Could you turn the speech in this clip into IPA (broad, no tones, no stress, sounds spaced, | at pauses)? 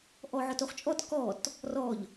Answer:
ʔ ɔ ʕ ɔ t o χ t͡ʃʼ ɔ t k ɔ t | r ɔ ʎ